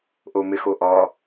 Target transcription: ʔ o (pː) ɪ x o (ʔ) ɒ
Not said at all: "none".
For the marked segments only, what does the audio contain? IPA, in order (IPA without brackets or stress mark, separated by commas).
m, ʔ